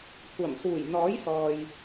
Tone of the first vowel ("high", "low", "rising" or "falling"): low